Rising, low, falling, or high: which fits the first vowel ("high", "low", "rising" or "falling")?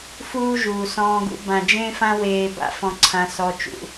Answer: high